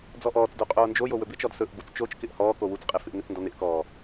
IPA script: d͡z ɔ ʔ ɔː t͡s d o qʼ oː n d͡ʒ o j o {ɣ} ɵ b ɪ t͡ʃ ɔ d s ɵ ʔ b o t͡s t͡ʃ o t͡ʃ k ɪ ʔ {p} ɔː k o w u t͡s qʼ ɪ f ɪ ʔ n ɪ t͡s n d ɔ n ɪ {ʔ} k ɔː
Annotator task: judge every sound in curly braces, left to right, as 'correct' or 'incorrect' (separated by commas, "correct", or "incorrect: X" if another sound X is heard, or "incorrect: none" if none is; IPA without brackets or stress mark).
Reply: incorrect: w, incorrect: h, correct